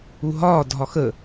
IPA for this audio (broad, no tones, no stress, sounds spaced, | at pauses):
u ɦ ɒː dʱ ɒ x ə